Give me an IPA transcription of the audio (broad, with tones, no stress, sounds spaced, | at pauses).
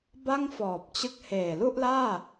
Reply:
b a˥˩ ŋ f ɔː˨˩ p̚ t͡ɕ ɯ˥˩ k̚ h eː˨˩ l u˥˩ ʔ l aː˥˩